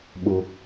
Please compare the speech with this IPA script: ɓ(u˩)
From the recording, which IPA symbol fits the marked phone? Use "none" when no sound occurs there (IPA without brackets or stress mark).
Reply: u˩